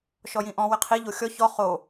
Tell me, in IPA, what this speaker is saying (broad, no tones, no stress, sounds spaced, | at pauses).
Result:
ʃ ɔ j ĩ ʔ ɔ̃ w ɪ qʰ i ʎ o xʲ ɔ ç ɔ χ o